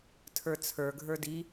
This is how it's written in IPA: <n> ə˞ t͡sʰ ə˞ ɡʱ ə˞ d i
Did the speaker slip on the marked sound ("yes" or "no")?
yes